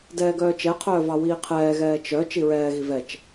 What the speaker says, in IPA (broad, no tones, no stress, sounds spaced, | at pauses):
d ɛː ɡ œː t͡ʃ ɛ qʰ œː v ɑ w iː qʰ ɛː ɣ ɛː t͡ʃ œ t͡ʃ i ɹ ɛː ɣ i v ɛ t͡ʃ